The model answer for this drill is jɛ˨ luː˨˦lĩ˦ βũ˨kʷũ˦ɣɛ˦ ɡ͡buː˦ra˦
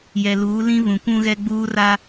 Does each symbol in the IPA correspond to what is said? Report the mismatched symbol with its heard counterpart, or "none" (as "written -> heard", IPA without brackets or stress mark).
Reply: none